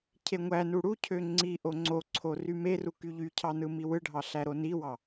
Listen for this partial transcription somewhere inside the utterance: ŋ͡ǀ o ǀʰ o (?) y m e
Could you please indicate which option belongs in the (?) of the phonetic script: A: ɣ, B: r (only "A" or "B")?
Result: B